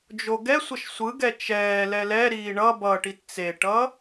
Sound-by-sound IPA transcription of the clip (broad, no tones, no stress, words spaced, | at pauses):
d͡ʒoɡɛsʷʌʃ sʷɯɡɛ t͡ʃɛː lɛlɛɾiː ɳʌ bʌʈit t͡seʈʌ